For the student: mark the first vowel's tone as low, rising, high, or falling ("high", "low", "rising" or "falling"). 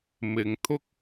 low